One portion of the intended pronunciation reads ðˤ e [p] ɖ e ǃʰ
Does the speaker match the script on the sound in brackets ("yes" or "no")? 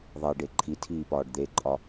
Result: no